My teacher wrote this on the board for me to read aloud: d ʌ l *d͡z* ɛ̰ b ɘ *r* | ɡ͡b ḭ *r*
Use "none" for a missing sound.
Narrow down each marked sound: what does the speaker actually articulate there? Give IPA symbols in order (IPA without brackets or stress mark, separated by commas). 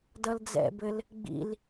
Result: d͡z, l, l